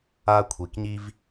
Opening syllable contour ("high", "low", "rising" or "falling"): high